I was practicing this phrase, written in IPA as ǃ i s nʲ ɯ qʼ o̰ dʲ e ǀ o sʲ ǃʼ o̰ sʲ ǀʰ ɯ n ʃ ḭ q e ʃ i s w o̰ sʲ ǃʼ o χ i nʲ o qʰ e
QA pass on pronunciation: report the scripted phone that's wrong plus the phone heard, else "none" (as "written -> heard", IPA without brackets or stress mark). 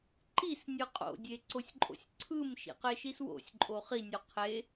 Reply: n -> m